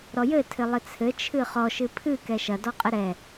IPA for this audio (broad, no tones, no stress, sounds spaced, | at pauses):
ɾ ɔ j ɘ tʰ ɘ lˠ ɘ t͡sʰ ɘ t͡ʃʰ ɨ χ ɔ ʃ ɨ pʰ ɨ k ɛ ʃ ɐ d ɔ qʼ ɘ ɾ ɛ